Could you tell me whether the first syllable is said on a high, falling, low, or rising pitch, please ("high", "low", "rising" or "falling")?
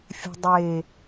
low